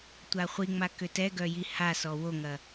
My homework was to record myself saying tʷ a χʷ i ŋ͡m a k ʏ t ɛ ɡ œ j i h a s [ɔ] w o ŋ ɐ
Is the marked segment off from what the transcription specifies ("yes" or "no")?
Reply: no